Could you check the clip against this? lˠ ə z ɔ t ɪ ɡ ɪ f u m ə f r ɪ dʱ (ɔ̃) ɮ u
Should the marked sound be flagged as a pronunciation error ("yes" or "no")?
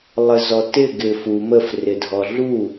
yes